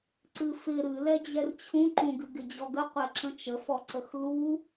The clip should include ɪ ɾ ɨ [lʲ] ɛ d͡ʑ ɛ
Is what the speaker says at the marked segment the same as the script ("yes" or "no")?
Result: no